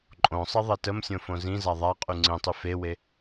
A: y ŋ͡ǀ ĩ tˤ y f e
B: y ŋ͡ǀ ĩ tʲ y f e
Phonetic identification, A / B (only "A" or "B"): A